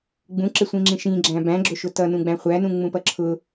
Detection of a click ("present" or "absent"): present